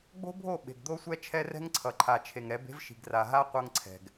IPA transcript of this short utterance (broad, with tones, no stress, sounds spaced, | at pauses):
ɡ͡b o̤˦ bʱ o˦˨ ɓ e̤˨ ɡ d̪ o˦ sʷ ɛ˦ t͡ʃʰ ɛ˦ r ɛ̤˦ ŋ ǀʰ ʌ˨ ǃʰ a˨ t͡ʃʰ e˨ ŋ ɾ ɛ˨˦ b e̤˦ v ʃ i̤˨ ɡ r a˨ ɦ a˦ qʷ ʌ˦ ŋ ǀʰ ɛ̤˨ ɡ